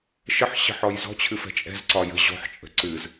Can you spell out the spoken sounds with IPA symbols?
ʃ ə ħ ɕ ə̤ ħ ɔ j z ɔ̤ t͡ɕʰ ɨ f ɛ̤ t͡ʃʼ ɛ̤ z ǀ ɒ j ə̤ ʑ ɔ̤ ħ t͡ʃʼ ə̤ ǀ ɨ z

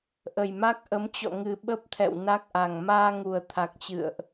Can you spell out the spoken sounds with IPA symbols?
ʔ ə˨˩ j m a˦˥ k̚ ʔ ə˨˦ m t͡ɕ ɔ̰˧˨ ŋ ɨ˨˩ ɓ ə˦˥ p̚ t̪ʰ ɛ̰˧˨ w n a˦˥ k̚ ʔ a˨˩ ŋ m aː˧ ŋ u˨˩ ə̯ t̪ʰ a˨˩ k̚ t͡ɕ ɨ̰˧˨ ə̯ ʔ

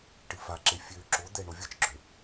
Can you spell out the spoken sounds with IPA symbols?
ʈ ɨ f a ǁ e fʲ ø ǁ o d̪ ɛ ɳ o vʲ ə t͡ʃ ɡ͡ǁ ø

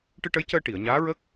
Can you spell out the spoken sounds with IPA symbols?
ʈ ɨ˧ ʈ ə˧˥ j c əː˧ ʈ i˨˩˨ ə̯ ɲ aː˧˥ ɹ ə˦˥ k̚

